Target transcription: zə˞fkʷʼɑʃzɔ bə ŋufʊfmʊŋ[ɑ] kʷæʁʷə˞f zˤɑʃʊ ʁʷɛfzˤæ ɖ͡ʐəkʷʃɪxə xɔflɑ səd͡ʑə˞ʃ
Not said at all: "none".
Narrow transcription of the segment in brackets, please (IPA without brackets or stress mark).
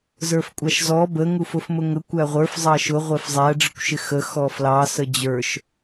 ə